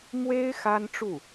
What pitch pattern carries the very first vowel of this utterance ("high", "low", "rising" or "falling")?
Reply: high